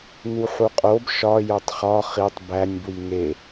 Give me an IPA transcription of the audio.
nuħuqʼob ʃɒ jotˤχɒ χitˤ bænʲ bwiŋe

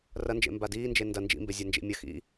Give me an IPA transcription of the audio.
rɐnd͡ʒḛmba diːnd͡ʒe ndɐ nd͡ʒḭmbezʲand͡ʒḭ mʲɐ xḭ

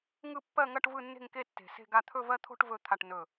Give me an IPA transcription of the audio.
ŋɯ˥˧pːɜ˥˧ŋɐ˥˧ʈ vɯ˥˧ nːe̤˥˧ŋke˥˧ tːe̤˧˩se̤˥˧ɡa˥˧ t̪ʰɵ˥˧vɜ˥˧ t̪ʰo̤˥˧ʈ vɵ˧˩ t̪ʰa˧˩ʈ nɵ˧˩

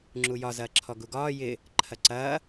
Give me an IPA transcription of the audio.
ŋ͡ǁujɒzɐːǁʰɔ ɡuɡɒː jɪ | ǃʰɐǀɐː

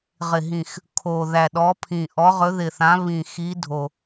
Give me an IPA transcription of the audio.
ʁɪ˨˩ɦĩ˨˩x | kʰo˨˩ ðæ˨˩ɗɔ˨˦pʰĩ˨˩ ʔɔ˨˦ʁɵ˨˦ðɪ˨˩θã˨˦ βĩ˨˩xi˨˦ dʱo˨˩

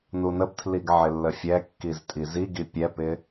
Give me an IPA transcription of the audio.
nunəbtʰliɡ ʕɪlːəfʲɛkːiz tʼiziɡi pʲɛpɪ

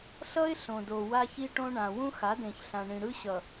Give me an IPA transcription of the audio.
ɬʌ˦ɪ̯ ɬõ˨do˨ wa˦çi˦ʈõ˦ ɳã˨ wũ˦xa˨˦dẽ˨çɬã˨ ɳĩ˨ɽɯ˦ ɕʌ˨

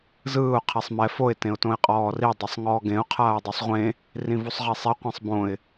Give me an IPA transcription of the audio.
zɯːʊ̯ qʰisˤmɛ foɪ̯ tẽʊ̯tõɪ̯qʼɔːri dˤisˤŋɔːɡẽʊ̯ qʰaːʊ̯dˤusˤʁʷẽ | rĩvusˤʁisˤe qʷĩsˤbõɪ̯

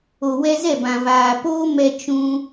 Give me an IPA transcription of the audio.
o˨wɛ˧zɛ˦˨bã˨ vaː˨ poː˦ mɛ˧ t͡ʃũ˧

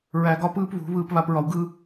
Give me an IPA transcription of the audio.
ɹæ˧ɡɒ˦pɯː˦pβṳ˨˦ βɯː˧pβa˧pɹɒ˧wɡɯː˦

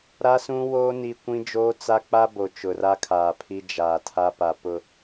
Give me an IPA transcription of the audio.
ɾa˦sũ˦woː˦ ni˦ kʷĩ˦d͡ʒoː˦t͡sa˦ k͡pa˦bo˨ t͡ʃʊ˨ra˦kʰaː˨ pʰi˦ d͡ʒa˨ tʰa˦pa˨ pʊ˨

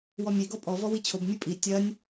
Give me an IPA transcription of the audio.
wɔmʲe ɡɔpʼɔ vɔwit͡ɕʰob mʲɨpʼi tʲɐnʲ

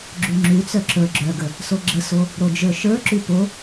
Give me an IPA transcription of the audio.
ɡ͡ǁʉŋ͡ǁʉt͡sœ ǁə˞ɡ͡ǁœɡə | soɡ͡ǁəso | ɾod͡ʒə˞ʃə˞ǁʉ po

